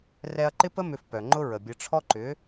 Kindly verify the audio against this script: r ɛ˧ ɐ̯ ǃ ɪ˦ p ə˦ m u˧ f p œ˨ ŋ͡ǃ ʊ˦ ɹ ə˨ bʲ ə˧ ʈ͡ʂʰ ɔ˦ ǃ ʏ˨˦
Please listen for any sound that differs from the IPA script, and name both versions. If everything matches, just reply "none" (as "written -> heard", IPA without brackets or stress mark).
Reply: u˧ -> ʏ˧